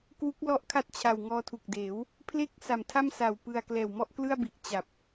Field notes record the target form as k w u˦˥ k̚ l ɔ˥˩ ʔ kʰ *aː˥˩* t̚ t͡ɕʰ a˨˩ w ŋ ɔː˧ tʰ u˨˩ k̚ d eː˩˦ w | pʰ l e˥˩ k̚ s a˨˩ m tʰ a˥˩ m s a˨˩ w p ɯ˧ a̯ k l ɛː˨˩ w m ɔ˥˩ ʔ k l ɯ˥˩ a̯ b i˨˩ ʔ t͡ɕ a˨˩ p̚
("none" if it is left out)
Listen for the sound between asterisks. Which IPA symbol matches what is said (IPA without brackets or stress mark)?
a˥˩